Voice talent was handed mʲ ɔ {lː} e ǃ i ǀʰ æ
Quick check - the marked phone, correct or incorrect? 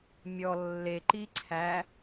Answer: correct